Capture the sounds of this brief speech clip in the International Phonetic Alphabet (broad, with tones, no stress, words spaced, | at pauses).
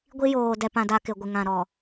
ɡʷi˦joː˨dɛ˨ pã˨da˨ kɪ˨ɡʷɪ˨ŋã˨ɾɔ˨